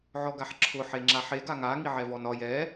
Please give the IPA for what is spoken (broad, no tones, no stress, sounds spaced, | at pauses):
ʕ ɔ ɡ a ħ ǁʰ ʊ ħ e ŋ͡ǁ a ħ e ɡ a ŋ a ŋ i ʕ ɛ v ɔ n ɒ j ɛ